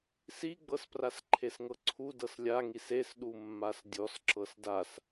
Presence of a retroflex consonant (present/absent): absent